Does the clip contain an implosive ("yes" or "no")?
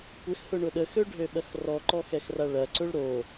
yes